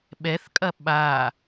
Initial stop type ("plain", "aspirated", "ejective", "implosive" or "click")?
implosive